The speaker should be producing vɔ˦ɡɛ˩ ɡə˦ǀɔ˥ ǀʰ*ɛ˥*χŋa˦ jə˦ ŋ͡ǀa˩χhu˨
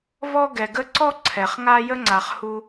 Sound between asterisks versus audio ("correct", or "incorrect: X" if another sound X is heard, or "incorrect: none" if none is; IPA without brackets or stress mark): incorrect: ɛ˩